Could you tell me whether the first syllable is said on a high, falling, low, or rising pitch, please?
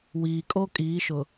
low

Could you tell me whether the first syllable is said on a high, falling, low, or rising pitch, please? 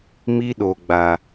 high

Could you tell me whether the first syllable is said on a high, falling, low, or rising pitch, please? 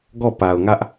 falling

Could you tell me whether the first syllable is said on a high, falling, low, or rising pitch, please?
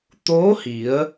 rising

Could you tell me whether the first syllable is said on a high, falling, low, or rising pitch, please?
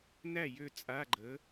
falling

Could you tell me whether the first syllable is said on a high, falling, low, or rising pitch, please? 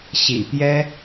low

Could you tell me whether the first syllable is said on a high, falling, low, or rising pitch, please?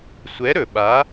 rising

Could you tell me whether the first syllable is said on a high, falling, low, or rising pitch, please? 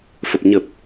low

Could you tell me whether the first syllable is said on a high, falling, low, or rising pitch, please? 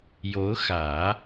rising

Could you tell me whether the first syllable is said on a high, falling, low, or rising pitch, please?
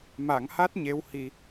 low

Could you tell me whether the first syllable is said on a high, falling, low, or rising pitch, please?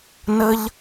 high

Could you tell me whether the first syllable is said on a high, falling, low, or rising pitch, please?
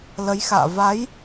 rising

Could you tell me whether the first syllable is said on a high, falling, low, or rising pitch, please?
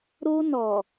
high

